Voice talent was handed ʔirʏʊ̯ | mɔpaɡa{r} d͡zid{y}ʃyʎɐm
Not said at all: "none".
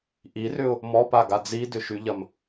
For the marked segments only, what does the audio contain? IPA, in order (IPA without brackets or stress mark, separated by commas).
none, ʏ